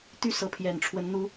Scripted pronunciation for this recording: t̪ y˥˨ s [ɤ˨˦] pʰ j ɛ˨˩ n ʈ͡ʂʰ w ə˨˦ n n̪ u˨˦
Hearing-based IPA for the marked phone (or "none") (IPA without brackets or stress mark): ɤ˨˦